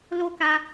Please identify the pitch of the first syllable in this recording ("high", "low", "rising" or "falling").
high